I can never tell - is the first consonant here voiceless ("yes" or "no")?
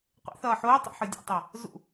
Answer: yes